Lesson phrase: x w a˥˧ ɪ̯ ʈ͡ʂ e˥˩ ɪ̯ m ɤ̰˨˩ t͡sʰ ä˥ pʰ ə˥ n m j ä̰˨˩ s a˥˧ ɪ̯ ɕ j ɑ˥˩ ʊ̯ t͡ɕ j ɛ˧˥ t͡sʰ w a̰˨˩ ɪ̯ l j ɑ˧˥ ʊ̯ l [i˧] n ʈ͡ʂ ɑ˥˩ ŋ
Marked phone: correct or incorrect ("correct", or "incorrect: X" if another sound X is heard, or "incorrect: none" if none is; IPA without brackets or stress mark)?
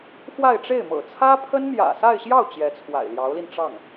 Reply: correct